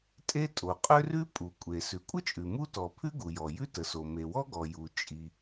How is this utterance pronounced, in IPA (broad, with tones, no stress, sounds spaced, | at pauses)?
tʼ e˥ tʼ o˩ qʼ ø˥ r ʉ˥ pʼ u˩ kʷʼ e˩ s ʉ˩ kʷʼ ə˥ t͡ʃʼ ʉ˩ m u˥ t ɔ˩ pʰ ʉ˥ ɡ u˩ j ɔ˩ j ʉ˥ t ə˩ s o˩ m e˩ w ɔ˥ ɡ ɔ˩ j u˩ t͡ʃʼ i˩